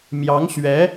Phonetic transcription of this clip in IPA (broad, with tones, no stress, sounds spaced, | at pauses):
m j ɑ˧˥ ŋ ɕ ɥ ɛ˧˥